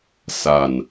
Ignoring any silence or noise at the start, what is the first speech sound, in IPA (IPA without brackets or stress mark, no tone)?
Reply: s